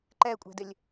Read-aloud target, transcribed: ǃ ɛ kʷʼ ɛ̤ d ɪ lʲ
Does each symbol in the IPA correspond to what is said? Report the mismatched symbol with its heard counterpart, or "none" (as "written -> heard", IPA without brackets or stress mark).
none